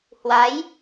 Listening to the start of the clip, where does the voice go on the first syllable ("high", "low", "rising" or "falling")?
rising